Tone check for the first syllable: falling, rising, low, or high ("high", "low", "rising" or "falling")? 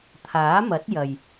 rising